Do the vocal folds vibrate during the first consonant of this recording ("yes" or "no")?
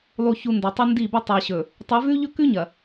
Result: yes